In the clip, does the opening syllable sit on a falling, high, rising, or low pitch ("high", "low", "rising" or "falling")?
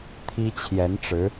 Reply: high